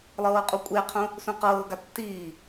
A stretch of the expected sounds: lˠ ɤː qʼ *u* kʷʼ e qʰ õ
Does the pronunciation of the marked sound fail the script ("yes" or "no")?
no